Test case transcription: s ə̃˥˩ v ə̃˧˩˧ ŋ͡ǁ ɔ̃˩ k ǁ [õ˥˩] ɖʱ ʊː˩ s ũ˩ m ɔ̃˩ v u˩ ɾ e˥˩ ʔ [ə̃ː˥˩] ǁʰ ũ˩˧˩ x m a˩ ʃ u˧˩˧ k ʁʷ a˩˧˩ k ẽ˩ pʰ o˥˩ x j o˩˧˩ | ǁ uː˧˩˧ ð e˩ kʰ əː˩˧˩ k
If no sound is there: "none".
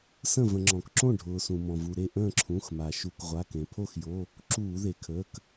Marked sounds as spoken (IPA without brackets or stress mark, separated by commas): õ˥˩, ə̃ː˥˩